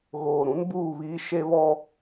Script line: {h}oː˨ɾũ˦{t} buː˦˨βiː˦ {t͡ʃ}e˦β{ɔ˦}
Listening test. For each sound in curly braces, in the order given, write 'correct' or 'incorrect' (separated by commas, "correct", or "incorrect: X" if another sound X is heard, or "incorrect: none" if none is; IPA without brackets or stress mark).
incorrect: ɣ, incorrect: n, incorrect: ʃ, correct